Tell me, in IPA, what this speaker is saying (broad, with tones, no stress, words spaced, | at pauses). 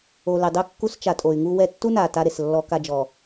o˨le˨dˤø˦ kːu˦st͡ʃa˨ tʼo˨y̯ŋu˦wɛ˦ tːu˦na˨ ta˦ɾe˨slːɔ˦ka˦ d͡ʒɔ˨